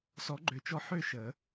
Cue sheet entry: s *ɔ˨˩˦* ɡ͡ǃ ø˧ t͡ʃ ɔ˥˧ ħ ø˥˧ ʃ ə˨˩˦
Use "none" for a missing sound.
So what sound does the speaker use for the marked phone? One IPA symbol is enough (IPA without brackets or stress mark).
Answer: ɔ˧˥